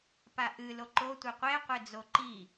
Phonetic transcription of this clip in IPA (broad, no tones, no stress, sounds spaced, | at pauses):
p a ʔ ɨ l o ǃ o tʷ ɘ qʷ e qʷ e d͡z o ǃ i